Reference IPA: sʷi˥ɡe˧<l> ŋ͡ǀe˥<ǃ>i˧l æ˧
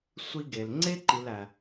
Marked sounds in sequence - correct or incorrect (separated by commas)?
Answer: correct, correct